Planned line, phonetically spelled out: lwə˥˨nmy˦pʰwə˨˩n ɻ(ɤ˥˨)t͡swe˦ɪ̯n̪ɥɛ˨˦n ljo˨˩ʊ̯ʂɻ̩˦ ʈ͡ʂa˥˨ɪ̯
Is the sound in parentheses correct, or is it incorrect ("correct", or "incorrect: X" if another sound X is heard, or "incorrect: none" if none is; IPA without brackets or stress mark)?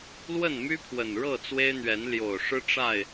correct